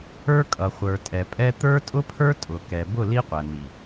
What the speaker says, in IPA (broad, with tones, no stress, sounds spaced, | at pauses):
ə˞˦ kʼ ʌ˨ χʷ ə˞˨ tʼ ɛ˨ pʼ ɛ˦ t̪ ə˞˦ tʼ ʊ˦ pʰ ə˞˦ tʼ ʊ˨ k ɛ˨ b ʊ˦˨ l i˦ qʷ æ˨ n̪ i˨